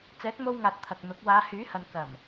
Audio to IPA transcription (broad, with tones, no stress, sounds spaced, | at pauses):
t͡s ɛː˨˥ t̚ m o˧ w ŋ aː˨ t̚ t̪ʰ ɐ˨ k̚ n̪ ʊ˨˥ k̚ w aː˨˧ h yː˨˥ h ɐ˨ n k ɐ˨˩ m